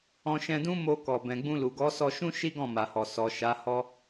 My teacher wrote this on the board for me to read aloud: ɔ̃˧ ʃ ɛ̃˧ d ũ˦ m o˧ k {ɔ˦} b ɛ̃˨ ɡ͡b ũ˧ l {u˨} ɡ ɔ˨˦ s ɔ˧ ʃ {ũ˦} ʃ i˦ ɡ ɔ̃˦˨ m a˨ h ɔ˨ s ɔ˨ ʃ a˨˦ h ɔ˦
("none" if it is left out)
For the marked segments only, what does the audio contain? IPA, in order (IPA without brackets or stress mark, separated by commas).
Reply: ɔ˨, u˨, ũ˦